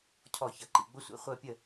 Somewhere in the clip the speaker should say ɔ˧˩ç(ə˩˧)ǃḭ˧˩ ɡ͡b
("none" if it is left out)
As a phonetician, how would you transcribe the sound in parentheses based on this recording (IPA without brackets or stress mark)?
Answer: ʌ˩˧